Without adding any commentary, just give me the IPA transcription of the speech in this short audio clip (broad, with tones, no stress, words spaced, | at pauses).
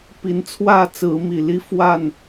pi˨˦n t͡sʰwä˥˨t͡sɹ̩˨˦mi˨˩li˦ fwa˥˨n